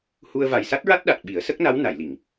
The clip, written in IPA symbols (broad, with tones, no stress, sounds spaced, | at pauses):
h u˧ ə̯ v a˨˩ j s a˦˥ t̚ ɹ a˦˥ t̚ ɗ a˨˩ t̚ ɓ i˨˩˦ ə̯ s ə˦˥ k̚ n a˧˥ w n a˨˩˨ j l i˨˩˨ ŋ